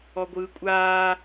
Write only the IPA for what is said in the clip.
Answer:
ɔɡʷɯːkʷʼaː

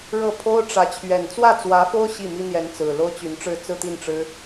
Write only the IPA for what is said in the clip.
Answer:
ɻɤ˥˩pʰo˥ʊ̯ʈ͡ʂä˧˥ t͡ɕʰɥɛ˨˩nt͡swä˥˩t͡swä˧˥ fo˥ʊ̯ ɕi˥˩mi˥n̪jɛ˧˥n t͡sɹ̩˨˩ lo˥ʊ̯t͡ɕy˧˥nʈ͡ʂɻ̩˥˧ t͡sɹ̩˥˧t̪i˥˩nʈ͡ʂɻ̩˥

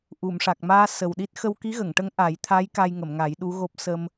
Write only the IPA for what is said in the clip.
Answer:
ʔu˨˩˨m ʂa˨˩k̚maː˧ sə˨˩wɗi˦˥t̚ xə˧wki˧˥ɣə˨˩˨ŋʈə˧˥ŋ ʔa˨˩˦j t̪ʰa˧˥j ka˧jŋə˨˩˨mŋa˨˩˦j ɗu˧˥ɣo˦˥p̚ sə˧m

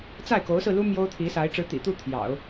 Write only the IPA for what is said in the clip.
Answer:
t͡sa˥˩ɪ̯ko˧˥ʊ̯sɹ̩˧lu˥ mjo˥ʊ̯t̪ʰi˧˥sa˧˥ɪ̯ ʈ͡ʂɻ̩˧˥t̪ḭ˨˩t̪u˥˩ t̪ʰjɑ̰˨˩˦ʊ̯

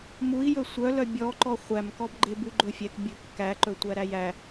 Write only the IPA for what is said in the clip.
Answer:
mui̯ jɵsʷœlœ bʲɔǃɔ χʷæmkɔbɡ͡ǃebʉ ɡ͡ǃɵfʲɛk bʲɵkːæ ǃɵtʷæɾæjæ

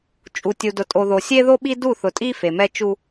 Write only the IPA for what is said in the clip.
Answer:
t͡ʃʼu˨tʲu˨dʊ˨ tʼo˨ðo˨ sʲe˦ðo˦ɓi˦ du˦˨θʊ˨tʼi˦ fe˨mɛ˦t͡ʃu˦

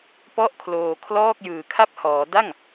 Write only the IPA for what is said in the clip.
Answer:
pɔ˥˩ʔkʰloː˧ kʰlɔː˥˩k̚jɯː˨˩kʰa˥˩p̚hɔː˩˦ da˥˩ŋ

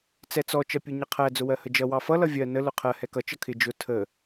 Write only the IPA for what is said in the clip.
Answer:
t͡sɛt͡sɔ t͡ʃʌpʲuɲʌqʰæ d͡zʊwɜhəd͡ʒʌ wɑfʌ lʌvʲɜ nə lʊqʰɜ hɛkʌ t͡ʃʌkʰɪ d͡ʒʊ tʰə

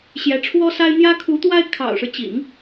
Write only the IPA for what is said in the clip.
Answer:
ɕjɛ˧˥ʈ͡ʂʰwɔ˥sa˥ɪ̯ n̪jä˥kʰu˧˥t̪wa˥ɪ̯ kʰɑ̰˨˩ʊ̯ʂɻ̩˦t͡ɕḭ˨˩˦ŋ

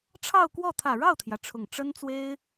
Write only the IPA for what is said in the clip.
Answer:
ʈ͡ʂʰɑ˥˧ʊ̯kwɔ˥˩ t̪ʰä˨˩ɻɑ˥˩ʊ̯t̪ʰjä˩ ʈ͡ʂʰʊ˨˩ŋ ʈ͡ʂə˥nt͡swe˥ɪ̯

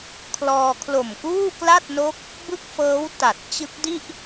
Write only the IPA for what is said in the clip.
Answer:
kʰlɔː˧ kʰlo˨˩mkuː˥˩kla˥˩t̚no˦˥k̚ | bɯ˥˩k̚fɤː˦˥w ta˨˩t̚ t͡ɕɯ˦˥k̚di˥˩ʔ

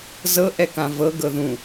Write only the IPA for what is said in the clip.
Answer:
zɤ ʔɛkãvɤ ɡɤðũ

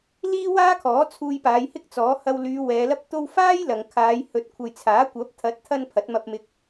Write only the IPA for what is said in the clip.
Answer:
liː˥waː˥kʰɔː˨˥ t͡sʰuː˧jpaː˨˧jhɪ˥k̚t͡sɔː˨˥ hɐ˧wlyː˨˧ wɛː˨˧lɐ˥p̚t̪o˥w faː˥j lɐ˨ŋkʰaː˨˧j hɵ˨˥t̚ kʷʰɐ˨jt͡sʰaː˨˥kʷɐ˨˥p̚ t̪ʰɐ˨˥t̚t̪ʰɐ˧n pʰɐ˨˥t̚mɐ˧p̚mɪ˧k̚

